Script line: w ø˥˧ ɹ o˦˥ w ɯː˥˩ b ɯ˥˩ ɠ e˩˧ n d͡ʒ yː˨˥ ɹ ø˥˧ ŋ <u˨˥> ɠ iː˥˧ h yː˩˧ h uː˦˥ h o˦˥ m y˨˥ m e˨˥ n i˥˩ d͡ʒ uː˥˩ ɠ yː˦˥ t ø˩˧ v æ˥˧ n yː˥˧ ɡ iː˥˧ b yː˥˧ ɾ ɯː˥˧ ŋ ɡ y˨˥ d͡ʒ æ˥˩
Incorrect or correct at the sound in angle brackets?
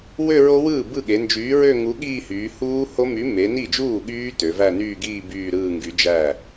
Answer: correct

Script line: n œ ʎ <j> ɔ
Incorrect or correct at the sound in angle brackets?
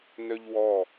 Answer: incorrect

